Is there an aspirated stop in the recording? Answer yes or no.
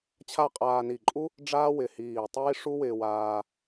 yes